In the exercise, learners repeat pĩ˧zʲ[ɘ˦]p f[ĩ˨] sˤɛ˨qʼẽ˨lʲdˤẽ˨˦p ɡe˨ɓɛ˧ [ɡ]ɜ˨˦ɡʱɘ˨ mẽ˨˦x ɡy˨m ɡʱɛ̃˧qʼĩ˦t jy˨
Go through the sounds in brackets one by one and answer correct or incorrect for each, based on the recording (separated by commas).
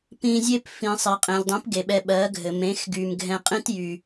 incorrect, correct, incorrect